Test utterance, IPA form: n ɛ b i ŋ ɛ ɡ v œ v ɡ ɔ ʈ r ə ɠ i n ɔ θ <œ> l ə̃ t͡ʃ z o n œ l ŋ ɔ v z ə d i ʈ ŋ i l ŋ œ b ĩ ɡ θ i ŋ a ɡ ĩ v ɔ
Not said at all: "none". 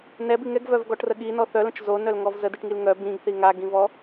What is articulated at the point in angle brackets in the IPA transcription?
œ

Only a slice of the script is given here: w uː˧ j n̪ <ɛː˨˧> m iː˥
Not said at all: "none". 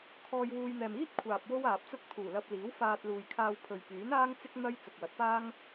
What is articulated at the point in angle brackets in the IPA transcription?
ɛː˨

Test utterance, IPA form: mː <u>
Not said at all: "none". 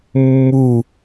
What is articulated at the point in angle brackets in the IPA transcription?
u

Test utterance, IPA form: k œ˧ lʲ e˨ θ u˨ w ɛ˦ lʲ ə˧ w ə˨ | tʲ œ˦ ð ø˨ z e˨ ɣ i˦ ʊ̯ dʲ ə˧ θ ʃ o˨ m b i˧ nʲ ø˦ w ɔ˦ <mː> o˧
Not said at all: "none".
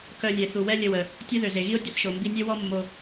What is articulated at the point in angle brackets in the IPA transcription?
mː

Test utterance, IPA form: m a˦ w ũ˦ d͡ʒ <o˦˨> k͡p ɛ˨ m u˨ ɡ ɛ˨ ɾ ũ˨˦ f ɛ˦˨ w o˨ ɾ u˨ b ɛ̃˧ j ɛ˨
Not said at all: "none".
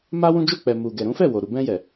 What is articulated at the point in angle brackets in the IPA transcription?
o˦˨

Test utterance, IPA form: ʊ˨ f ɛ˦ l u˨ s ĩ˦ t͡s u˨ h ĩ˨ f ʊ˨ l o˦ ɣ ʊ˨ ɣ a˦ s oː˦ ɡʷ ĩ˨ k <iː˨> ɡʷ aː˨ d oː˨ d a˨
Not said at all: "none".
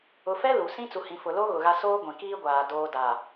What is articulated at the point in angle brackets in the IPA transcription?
iː˦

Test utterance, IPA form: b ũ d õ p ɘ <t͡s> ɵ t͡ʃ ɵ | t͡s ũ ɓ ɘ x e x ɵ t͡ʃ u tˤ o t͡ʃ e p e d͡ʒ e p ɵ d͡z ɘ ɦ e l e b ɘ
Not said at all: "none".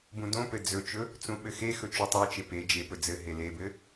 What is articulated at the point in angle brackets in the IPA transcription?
d͡z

